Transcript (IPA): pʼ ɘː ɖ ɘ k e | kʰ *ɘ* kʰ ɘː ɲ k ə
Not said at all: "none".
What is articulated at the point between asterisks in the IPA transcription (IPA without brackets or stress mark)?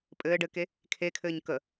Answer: e